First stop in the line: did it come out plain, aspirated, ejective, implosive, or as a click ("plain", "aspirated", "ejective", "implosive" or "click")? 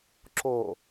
click